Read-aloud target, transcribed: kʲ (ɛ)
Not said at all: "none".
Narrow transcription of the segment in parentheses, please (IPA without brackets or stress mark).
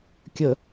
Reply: ə